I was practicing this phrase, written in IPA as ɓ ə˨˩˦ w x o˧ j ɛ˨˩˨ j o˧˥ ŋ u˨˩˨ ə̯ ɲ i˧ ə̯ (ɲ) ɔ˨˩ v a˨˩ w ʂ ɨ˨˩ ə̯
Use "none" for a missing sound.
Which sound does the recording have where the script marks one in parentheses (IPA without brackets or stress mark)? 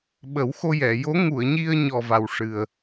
ɲ